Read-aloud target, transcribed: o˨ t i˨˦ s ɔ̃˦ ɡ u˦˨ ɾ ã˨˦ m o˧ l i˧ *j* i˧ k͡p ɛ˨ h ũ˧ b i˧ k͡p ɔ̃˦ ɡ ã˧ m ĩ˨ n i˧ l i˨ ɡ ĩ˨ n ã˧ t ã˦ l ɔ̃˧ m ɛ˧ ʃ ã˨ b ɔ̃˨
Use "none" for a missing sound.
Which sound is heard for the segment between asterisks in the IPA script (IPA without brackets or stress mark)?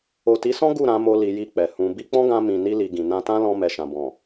j